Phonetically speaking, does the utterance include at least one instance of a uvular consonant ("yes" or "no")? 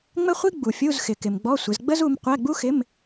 yes